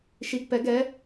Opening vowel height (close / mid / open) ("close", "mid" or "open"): close